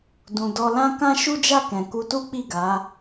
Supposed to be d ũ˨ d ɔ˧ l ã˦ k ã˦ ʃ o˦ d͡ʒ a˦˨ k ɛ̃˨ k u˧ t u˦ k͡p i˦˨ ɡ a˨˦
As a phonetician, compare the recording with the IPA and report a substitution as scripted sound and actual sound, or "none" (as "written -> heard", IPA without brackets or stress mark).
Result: o˦ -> u˦